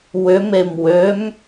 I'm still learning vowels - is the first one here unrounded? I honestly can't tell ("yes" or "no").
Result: no